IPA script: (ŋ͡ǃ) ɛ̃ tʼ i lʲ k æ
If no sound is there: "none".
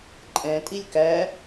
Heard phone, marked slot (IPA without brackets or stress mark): ǃʼ